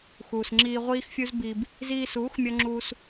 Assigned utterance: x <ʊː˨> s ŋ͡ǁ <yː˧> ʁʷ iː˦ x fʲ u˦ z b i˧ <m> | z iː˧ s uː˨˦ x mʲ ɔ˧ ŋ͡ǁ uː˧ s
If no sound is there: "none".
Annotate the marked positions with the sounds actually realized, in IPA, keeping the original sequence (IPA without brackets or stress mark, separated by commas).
uː˨, iː˧, b